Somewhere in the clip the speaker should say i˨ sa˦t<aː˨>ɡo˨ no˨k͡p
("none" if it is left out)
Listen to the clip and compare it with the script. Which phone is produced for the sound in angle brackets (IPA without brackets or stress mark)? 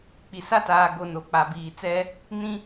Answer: aː˨